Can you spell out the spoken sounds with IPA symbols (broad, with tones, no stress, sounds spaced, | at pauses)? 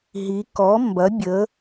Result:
ɦ i˩˧ k ɔ˩˥ m b ɐ˩˥ bʲ ə˩˧